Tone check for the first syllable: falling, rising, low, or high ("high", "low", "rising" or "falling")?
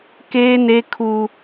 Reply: high